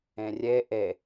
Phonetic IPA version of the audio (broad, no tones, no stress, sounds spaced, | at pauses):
ẽ rʲ e ʔ e